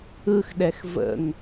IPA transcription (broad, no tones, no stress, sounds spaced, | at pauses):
ɯ x ɗ ɛ x v ə̰ ŋ